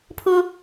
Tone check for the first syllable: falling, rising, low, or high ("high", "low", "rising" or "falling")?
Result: high